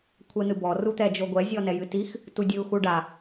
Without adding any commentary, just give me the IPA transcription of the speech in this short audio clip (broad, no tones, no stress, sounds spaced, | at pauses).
kʷʰ ɛ n̪ ɨ b ɔ r u t̪ ɛ d͡ʒ o ɡʷ ɛ zʲ ɔ n ɛ j ɨ t i x | t u dʲ ɨ u̯ x u ɖ a